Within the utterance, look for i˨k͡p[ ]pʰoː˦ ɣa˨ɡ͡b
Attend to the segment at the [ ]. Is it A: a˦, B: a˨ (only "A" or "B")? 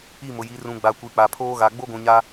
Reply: B